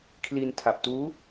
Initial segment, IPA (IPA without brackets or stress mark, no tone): kʰ